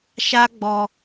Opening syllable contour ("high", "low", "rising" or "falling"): high